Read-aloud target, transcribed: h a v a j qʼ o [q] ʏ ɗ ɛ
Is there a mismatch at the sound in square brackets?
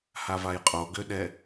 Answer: yes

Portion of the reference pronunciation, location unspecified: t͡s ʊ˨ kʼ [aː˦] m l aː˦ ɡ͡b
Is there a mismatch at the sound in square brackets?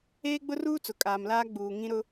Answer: yes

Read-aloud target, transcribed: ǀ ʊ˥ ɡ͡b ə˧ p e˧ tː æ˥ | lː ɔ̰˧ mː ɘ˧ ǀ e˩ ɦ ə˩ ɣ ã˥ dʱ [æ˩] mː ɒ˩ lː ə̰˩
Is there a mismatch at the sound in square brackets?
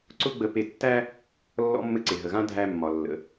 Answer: yes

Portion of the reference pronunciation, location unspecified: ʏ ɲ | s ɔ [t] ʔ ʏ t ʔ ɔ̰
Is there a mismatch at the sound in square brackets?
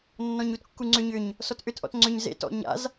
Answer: no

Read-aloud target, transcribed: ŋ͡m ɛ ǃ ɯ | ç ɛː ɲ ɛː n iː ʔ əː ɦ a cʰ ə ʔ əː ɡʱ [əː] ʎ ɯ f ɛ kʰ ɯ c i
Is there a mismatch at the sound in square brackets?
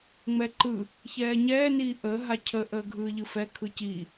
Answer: yes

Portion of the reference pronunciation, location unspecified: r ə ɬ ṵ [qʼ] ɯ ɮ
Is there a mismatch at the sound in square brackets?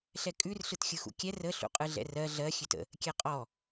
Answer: no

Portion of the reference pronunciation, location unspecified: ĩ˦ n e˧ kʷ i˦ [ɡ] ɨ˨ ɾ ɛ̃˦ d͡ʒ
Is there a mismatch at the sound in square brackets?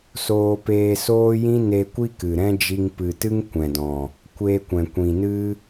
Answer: yes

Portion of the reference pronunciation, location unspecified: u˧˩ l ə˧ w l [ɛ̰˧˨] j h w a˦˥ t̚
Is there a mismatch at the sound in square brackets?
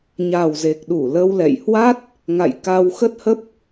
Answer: no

